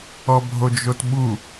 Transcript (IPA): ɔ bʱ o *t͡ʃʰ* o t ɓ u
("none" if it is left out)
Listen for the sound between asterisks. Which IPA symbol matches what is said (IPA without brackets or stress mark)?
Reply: d͡ʒ